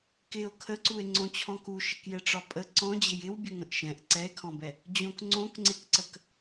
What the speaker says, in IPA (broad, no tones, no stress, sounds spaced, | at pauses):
k ɪ o̯ kʰ ə ǀ u e̯ ŋ͡ǀ õ t͡ɕʰ ɔ̃ k u ʃ ɪ k j ɛ ʈ͡ʂ ɒ pʼ ə ǀ ɔ̃ d͡ʑ ɪ j ɪ w bʲ ə ŋ ə̃ ʔ ʃ ɛ̃ ʔ ǀ ɛ e̯ kʰ ɔ̃ b ɛ | d͡ʑ õ k ŋ͡ǀ õ k ŋ͡ǀ ɪ k ǀ ə k